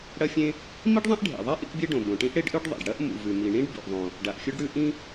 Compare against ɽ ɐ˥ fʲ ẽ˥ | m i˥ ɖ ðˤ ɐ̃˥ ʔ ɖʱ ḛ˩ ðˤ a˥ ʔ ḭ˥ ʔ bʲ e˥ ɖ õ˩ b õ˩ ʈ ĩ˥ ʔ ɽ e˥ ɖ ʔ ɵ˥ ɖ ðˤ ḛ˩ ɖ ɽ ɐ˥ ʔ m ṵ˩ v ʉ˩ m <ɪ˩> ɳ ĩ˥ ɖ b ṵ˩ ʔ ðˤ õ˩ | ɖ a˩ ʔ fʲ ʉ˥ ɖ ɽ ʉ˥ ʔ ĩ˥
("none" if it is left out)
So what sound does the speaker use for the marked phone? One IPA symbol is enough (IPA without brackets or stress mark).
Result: i˩